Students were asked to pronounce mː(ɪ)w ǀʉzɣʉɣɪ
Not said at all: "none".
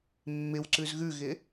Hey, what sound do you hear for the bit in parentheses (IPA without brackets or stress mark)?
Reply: ɪ